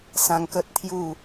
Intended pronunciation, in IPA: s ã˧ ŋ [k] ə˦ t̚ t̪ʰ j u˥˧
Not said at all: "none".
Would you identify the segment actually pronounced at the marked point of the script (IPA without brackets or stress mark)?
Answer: k